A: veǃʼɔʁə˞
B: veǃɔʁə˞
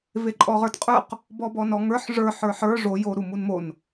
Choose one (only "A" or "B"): A